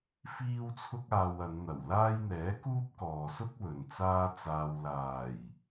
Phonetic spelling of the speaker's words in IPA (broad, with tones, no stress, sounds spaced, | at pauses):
f iː˥ w t͡sʰ ʊ˥ k̚ aː˧ w ɐ˨˧ n n̪ ɐ˨˩ w l aː˥ j n̪ ɛː˨˥ k uː˥ p̚ k ɔː˨ s ʊ˥ k̚ w ɵ˨ n t͡s aː˥ t͡s aː˧ w l aː˨˩ j